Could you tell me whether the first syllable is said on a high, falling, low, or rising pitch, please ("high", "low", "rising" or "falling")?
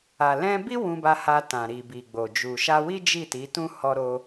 low